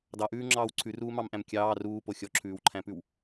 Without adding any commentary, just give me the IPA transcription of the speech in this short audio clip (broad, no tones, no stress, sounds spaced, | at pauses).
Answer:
d ɑ ʔ ʉː ŋ͡ǁ ɑː w ǀʰ ʉ r uː m ɑ m ʔ æ̃ m kʲ ɑː r uː p o xʲ ɔ ǁʰ ʉː w ǃʰ æ̃ p ʉ w